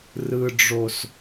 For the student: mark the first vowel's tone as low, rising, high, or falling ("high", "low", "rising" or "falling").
low